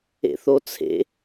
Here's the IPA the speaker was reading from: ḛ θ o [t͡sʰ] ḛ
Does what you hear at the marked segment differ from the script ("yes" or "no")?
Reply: no